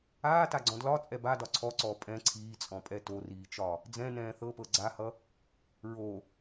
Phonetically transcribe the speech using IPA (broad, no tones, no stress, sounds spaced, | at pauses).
aː t a ɡ͡ǀ ɔ̃ d l ɒ t͡sʼ ɛ b a d ɒ ǀʰ ɔ ǀ ɔː pʼ ɛ̃ ǀʰ iː t͡sʼ ɔ̃ pʼ ɛ t o r iː t͡ʃ ɒ | d͡z ɛ̃ n ɛ̃ː θ ɤ p ɤ ɡ͡ǀ a h ʌ | ɹ o